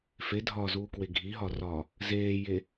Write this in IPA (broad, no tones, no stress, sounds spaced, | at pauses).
f e dʱ ɒː z uː k w e ɡʱ i ɦ ɒ r ɒː | z eː j e